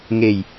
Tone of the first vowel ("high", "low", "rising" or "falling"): low